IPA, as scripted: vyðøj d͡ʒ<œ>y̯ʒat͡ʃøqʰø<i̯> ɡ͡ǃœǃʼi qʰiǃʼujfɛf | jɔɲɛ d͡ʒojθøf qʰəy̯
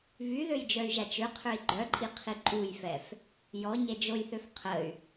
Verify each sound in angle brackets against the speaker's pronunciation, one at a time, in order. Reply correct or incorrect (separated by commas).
correct, correct